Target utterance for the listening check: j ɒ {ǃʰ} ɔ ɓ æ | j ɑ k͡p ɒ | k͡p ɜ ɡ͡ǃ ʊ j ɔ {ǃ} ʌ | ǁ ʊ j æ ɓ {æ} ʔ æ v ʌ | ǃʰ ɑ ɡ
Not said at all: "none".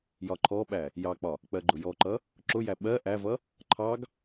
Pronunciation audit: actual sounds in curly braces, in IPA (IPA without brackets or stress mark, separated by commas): ǃʰ, ǃ, ɜ